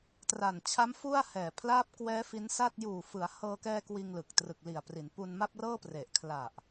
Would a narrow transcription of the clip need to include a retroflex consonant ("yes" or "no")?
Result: no